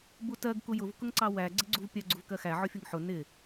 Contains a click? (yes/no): yes